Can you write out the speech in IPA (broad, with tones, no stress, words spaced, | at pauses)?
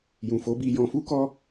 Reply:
jũ˨fo˨˦bi˧ jɔ̃˧fu˦kɔ˦